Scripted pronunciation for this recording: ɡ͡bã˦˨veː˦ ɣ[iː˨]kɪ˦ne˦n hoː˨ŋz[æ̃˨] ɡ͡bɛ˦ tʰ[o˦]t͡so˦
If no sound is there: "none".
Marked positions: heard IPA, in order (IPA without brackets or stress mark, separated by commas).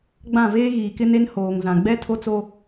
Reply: iː˨, ã˨, o˦